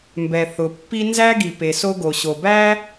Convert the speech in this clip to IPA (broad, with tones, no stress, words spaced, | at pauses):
mbɛ˩ θʊ˩pːi˥ nzæ˥ɡi˩pe˩ so˥ɡo˩ ɕo˩bæ˥